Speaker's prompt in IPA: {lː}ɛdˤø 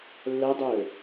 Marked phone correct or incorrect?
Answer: correct